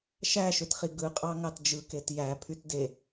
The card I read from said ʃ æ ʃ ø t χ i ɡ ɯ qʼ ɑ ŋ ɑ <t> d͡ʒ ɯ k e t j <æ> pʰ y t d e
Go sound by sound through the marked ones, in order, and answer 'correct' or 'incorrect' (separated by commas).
correct, correct